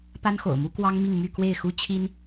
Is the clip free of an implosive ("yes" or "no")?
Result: yes